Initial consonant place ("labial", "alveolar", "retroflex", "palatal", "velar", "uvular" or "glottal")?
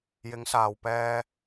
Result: palatal